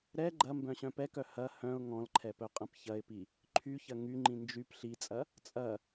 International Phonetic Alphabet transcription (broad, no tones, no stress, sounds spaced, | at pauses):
ɾ ɛ ɡ͡ǃ ɐ m b œ̃ ɕ œ̃ p ɛ k œ h ɐ h œ̃ ʊ̯ ŋ ɔ̃ l ǃʰ ɛ p œ qʼ ɐ̃ p ç ɐ ɪ̯ p i | ǃʰ y ç ɐ ŋ y ŋ͡ǃ ĩ n d͡ʒ y p ɬ i t͡sʼ ɐ | t͡sʼ ɐ